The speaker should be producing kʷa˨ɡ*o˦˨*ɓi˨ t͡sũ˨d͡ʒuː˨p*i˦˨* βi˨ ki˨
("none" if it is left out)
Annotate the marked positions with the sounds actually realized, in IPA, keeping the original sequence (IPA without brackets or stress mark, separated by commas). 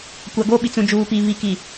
o˦˨, i˨